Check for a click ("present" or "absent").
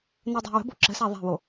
present